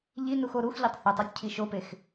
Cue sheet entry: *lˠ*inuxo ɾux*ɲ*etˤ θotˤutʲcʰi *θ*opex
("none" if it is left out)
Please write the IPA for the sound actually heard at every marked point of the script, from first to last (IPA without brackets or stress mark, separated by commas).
ʎ, ʎ, ʃ